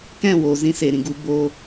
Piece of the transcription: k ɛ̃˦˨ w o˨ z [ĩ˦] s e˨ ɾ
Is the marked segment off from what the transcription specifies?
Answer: no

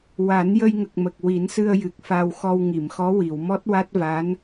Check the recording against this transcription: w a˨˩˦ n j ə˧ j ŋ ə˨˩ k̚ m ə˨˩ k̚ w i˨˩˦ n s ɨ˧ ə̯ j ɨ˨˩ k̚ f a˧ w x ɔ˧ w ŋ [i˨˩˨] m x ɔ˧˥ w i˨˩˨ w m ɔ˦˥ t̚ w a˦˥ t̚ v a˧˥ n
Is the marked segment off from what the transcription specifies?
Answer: no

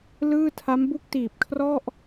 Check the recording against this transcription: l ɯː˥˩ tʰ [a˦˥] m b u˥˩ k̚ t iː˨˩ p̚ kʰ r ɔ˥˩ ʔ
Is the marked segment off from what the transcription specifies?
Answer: no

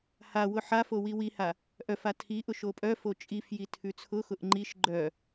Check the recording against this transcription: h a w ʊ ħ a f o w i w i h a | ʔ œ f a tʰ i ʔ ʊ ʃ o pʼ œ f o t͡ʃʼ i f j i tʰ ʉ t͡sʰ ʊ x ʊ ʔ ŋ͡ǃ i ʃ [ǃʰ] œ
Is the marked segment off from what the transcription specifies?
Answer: yes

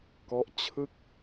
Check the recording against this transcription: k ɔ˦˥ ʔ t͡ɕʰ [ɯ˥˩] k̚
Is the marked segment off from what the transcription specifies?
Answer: no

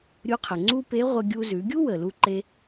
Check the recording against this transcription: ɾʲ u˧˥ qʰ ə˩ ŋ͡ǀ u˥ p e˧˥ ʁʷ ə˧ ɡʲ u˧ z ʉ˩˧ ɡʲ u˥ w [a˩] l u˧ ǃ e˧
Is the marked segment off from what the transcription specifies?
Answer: yes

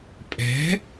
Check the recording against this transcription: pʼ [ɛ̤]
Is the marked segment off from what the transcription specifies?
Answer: no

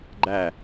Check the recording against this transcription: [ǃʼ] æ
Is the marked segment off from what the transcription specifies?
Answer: yes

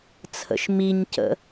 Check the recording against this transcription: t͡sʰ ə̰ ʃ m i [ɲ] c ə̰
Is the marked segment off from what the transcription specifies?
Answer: no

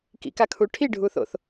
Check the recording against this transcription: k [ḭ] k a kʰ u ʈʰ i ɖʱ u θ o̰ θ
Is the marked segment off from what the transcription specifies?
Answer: no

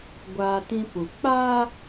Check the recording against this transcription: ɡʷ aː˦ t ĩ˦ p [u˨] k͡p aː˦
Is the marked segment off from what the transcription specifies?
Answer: no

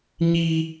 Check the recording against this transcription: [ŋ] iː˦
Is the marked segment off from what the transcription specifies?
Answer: yes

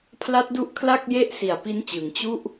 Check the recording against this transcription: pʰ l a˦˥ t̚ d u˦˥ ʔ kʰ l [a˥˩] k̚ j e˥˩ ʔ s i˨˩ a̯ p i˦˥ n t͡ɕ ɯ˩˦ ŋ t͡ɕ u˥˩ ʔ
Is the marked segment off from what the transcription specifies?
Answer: no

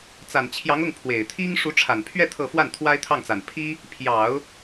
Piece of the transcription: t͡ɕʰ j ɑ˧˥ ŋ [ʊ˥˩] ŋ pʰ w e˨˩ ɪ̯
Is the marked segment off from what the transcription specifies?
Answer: no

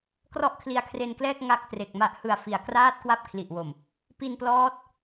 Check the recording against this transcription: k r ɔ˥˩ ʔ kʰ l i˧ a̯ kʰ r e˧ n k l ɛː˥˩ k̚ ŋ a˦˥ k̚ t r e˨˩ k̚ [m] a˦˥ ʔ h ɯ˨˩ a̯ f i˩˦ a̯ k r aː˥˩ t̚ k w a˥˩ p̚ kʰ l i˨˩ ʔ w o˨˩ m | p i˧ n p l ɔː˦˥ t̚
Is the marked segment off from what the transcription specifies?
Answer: no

